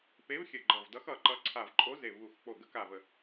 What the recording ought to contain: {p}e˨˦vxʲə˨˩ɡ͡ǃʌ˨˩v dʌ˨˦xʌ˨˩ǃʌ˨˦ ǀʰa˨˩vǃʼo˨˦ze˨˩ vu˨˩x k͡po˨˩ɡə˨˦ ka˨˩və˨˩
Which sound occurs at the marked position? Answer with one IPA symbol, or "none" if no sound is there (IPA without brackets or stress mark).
p